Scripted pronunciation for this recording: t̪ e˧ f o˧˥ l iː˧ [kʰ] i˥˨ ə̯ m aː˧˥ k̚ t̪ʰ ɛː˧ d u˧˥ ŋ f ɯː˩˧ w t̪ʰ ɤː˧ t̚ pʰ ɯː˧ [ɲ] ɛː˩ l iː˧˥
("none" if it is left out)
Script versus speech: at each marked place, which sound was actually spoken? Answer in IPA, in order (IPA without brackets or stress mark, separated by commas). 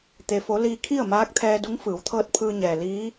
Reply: kʰ, ɲ